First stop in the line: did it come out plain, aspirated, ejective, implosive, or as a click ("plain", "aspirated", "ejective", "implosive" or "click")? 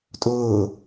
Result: ejective